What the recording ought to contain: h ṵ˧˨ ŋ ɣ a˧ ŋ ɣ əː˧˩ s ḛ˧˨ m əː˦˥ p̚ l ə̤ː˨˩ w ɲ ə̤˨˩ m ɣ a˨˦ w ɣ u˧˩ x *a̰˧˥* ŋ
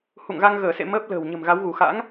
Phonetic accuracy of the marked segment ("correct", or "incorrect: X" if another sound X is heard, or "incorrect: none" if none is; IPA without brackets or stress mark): correct